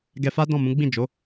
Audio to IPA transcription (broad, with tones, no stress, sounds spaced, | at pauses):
ɡ ɛ˧ f a˦ d ɔ̃˦˨ m ũ˨˦ ɡ͡b ĩ˦˨ d͡ʒ o˨˦